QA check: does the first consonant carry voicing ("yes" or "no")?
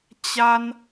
no